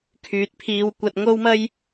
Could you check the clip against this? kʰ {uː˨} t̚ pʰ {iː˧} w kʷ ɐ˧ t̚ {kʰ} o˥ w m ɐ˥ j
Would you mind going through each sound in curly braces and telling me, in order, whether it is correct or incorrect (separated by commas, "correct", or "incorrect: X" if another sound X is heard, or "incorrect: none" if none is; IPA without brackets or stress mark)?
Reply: incorrect: yː˨, correct, incorrect: ŋ